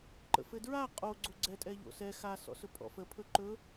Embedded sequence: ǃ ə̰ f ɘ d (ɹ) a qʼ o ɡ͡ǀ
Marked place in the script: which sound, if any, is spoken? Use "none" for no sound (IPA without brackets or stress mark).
ɹ